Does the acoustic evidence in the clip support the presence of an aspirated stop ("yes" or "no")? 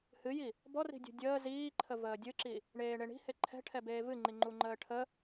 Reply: yes